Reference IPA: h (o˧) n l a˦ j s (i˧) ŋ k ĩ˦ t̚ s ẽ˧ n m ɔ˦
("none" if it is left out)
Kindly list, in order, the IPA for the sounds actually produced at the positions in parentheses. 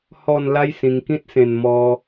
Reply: ɔ˧, ĩ˧

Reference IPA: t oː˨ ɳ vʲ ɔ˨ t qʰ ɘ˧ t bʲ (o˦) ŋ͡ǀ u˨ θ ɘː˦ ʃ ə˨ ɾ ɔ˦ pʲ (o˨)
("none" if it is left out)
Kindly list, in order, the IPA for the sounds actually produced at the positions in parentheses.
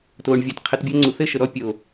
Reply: o˦, o˨

